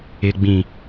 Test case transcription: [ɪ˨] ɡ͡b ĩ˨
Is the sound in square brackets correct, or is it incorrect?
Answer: correct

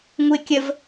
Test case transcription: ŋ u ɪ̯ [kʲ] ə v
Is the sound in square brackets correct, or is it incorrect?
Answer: correct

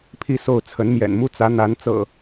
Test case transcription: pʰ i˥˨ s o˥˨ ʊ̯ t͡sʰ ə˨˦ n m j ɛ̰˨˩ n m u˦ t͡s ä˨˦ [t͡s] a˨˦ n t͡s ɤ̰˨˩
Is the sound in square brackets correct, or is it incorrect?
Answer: incorrect: n̪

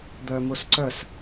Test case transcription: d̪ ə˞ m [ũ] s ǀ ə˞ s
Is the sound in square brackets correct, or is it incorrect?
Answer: incorrect: u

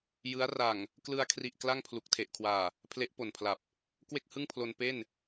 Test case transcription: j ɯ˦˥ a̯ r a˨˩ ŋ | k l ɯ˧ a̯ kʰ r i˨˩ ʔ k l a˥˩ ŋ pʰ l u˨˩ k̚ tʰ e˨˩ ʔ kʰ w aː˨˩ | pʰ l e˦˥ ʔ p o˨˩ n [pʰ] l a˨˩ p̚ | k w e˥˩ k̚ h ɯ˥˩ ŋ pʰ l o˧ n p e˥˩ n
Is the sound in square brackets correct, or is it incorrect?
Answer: correct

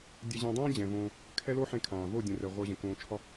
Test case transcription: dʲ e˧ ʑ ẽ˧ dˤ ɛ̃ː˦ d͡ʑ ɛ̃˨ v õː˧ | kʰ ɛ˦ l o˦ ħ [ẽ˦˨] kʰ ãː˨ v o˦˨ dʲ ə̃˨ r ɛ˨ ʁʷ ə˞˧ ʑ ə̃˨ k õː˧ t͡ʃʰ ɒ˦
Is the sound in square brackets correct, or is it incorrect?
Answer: incorrect: ẽ˧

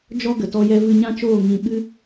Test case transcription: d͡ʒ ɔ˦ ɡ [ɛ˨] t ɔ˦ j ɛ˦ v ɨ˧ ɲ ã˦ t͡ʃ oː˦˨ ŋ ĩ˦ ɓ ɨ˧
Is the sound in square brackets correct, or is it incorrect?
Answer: incorrect: ə˨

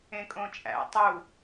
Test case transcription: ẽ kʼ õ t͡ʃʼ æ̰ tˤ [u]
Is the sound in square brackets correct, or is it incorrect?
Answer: correct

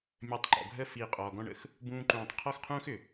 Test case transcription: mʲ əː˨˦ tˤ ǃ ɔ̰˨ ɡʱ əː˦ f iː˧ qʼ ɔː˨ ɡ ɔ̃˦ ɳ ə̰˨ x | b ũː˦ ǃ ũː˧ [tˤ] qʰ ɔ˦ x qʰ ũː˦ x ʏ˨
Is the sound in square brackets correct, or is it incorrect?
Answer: correct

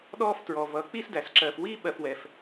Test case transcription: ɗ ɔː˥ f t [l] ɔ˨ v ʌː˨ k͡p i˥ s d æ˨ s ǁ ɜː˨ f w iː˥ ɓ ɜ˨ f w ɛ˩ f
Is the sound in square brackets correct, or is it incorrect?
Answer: incorrect: ɹ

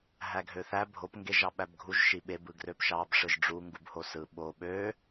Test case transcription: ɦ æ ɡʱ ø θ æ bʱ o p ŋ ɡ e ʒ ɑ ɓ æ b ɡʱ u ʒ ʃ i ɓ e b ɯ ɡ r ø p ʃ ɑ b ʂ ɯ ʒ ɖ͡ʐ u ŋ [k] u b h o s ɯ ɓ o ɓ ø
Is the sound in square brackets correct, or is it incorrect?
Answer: incorrect: ɡ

